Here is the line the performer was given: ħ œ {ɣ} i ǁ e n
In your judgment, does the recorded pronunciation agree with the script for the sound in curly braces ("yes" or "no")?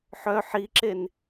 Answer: no